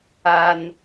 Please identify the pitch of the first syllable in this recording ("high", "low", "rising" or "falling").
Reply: high